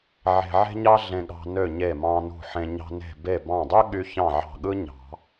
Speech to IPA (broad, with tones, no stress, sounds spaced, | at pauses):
ʕ e̤˧ ʕ e̤˥ ɲ ɑ˥ ɮ ẽ˧ ɠ ɑ̤˧ n ø˧˩ ɲ e˧˩ m ɑ̃˧ n ṳ˧˩ ħ ẽ˧ ɲ ɑ̤˧ n e̤˧˩ b e˧˩ b ɑ̃˧˩ dˤ ø˥ ɠ y˧ ç ɑ̃˧˩ ʕ ɑ̤˧˩ ɠ ɯ˥ ɲ ɑ̤˨˩˦